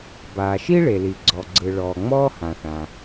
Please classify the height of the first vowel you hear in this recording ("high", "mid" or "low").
low